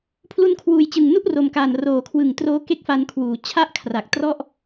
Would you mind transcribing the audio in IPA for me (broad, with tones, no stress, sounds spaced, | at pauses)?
pʰ l u˧ n kʰ w uː˨˩ j t͡ɕ ɯ˨˩ ŋ n u˥˩ ʔ r o˨˩ m k aː˨˩ n r oː˨˩ kʰ w ɯ˨˩ ŋ t r oː˦˥ k e˦˥ k̚ f a˧ n kʰ w uː˩˦ t͡ɕʰ a˥˩ ʔ kʰ r a˨˩ k̚ t r ɔ˥˩ ʔ